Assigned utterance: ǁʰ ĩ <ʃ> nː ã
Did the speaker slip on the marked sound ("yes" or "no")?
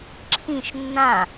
no